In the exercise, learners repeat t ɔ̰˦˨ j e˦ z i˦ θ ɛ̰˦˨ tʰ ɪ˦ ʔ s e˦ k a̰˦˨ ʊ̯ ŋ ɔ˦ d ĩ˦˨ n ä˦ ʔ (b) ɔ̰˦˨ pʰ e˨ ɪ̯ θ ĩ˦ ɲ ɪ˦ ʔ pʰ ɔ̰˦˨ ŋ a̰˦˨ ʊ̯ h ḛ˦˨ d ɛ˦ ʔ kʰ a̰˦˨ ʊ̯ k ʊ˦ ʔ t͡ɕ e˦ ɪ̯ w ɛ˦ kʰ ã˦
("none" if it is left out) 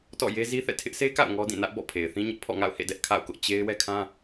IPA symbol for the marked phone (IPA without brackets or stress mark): b